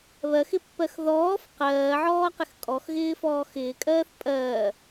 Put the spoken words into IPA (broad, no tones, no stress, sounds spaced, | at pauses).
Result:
β ɜ x ɪ pː ɜ x ð ɔː f q ɜː ʕ ɔː q ɪ x kʼ ɔ x ɣ ɪː f ɔː x ɪː kʼ ɜː θ pʼ ɜː